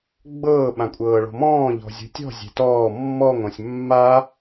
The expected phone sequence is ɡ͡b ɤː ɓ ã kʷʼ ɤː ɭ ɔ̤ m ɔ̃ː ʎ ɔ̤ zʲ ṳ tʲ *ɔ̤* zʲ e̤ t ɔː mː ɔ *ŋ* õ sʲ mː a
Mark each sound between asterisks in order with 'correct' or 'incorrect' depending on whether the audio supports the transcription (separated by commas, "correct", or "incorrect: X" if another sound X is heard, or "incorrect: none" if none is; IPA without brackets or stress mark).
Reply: correct, correct